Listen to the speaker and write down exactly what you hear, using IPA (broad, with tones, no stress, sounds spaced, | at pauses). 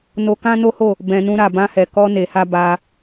n o˧ k ã˦ n o˦ h o˦˨ | b ɛ̃˨ n ũ˧ ɾ a˨ b ã˧ h ɛ˨ k ɔ˧ n e˨ h a˧ b a˧